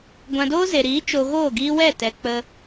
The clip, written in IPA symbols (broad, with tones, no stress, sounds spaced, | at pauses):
ɡʷ ã˧ d oː˦ z e˨ ɾ iː˨˦ t͡ʃ o˧ ɣ oː˦˨ ɡ iː˦ w ɛ˦˨ t ɛ˨ k͡p ə˧